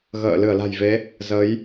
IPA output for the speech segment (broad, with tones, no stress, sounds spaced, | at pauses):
ɣ ə̰ː˧˨ l ɨ˧˩ ə̯ l a̤˨˩ j v e˨˦ | z ə˨˦ j